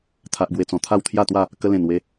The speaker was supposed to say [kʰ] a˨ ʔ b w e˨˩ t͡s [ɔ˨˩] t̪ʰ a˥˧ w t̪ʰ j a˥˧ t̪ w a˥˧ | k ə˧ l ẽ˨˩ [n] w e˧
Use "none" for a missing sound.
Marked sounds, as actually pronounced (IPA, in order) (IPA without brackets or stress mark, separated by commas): t̪ʰ, ɔ̃˨˩, n